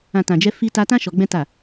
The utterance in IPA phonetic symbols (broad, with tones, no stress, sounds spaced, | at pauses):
ã˨ t ã˨ d͡ʒ ɛ˧ f i˧ t a˧ t ã˦ ʃ ɔ˧ ɡ͡b ɛ̃˦ t a˦˨